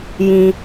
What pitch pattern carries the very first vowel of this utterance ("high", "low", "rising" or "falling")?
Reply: low